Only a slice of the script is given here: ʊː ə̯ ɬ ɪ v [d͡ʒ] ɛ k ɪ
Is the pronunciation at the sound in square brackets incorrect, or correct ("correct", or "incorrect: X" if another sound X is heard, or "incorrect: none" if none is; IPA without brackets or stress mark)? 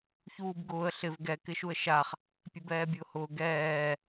incorrect: ɡ